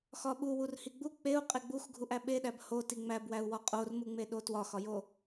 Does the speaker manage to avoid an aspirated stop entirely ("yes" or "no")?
yes